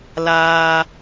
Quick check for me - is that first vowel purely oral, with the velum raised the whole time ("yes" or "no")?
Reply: yes